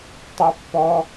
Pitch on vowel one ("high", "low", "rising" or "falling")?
high